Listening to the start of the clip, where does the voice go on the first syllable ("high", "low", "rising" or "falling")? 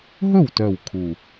falling